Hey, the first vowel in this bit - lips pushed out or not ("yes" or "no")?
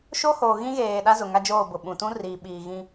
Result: yes